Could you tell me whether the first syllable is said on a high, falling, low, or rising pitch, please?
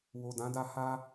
low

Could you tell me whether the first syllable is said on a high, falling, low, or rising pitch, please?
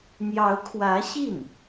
rising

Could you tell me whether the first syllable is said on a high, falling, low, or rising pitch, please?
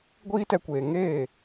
high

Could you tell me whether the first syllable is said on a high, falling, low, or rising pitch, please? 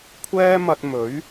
high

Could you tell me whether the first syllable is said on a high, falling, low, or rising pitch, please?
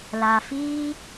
low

